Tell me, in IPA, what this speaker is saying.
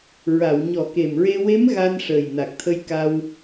ɹa˨˩˨wɲɔ˨˩˦ke˨˩mɹe˧ we˧˥m ɣa˧n ʂəː˨˩jna˨˩k̚t̪ʰə˧jka˧w

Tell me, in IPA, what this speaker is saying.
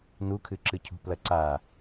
nukʰɨǁɨcʰṳ plɐǀa

